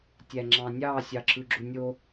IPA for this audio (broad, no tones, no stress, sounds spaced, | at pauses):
tʲ æ ŋ͡ǁ ɑ̃ nʲ ɑ sʲ ɑ ǁ ɯ ɡ͡ǁ u nʲ o